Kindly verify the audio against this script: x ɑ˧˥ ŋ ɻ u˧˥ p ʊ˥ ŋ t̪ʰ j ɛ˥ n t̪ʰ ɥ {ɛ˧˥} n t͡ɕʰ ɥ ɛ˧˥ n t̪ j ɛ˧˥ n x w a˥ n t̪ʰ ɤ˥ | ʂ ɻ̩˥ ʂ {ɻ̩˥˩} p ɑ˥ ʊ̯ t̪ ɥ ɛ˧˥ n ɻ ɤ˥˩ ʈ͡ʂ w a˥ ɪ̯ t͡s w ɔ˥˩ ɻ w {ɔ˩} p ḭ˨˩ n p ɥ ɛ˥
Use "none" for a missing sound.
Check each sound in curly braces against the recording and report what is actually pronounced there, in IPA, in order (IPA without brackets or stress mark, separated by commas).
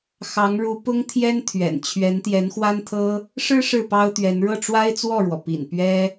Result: ɛ̰˨˩, ɻ̩˥˩, ɔ˩